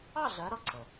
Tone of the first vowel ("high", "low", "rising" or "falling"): falling